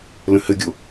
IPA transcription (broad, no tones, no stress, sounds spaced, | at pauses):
l ə̃ h ɘ ɡʲ o